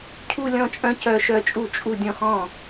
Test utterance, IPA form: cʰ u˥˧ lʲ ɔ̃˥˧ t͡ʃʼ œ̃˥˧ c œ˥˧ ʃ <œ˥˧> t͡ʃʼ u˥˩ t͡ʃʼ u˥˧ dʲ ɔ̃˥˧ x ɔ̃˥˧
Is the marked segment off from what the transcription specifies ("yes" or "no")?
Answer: no